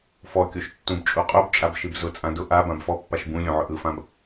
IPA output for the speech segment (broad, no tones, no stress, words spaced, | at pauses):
fɔkʲoʃ tːũbt͡ʃʼuqʼubt͡ʃʼab ʃibzʊt͡sʼã dʊ ʔa bãbfɔpːaʃ bũ lʲõʕʊʔɯfãb